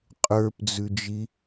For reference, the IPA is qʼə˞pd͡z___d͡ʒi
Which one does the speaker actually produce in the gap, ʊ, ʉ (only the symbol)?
ʉ